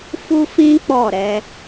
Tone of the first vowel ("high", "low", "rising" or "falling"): high